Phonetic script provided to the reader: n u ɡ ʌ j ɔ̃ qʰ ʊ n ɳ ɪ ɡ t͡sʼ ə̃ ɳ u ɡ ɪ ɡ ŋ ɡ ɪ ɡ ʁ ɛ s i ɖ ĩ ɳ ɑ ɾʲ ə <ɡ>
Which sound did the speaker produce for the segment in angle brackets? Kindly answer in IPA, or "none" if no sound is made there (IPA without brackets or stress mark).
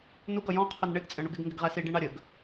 ɡ